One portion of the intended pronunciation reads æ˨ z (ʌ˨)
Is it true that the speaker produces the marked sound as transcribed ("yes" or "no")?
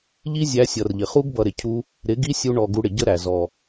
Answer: no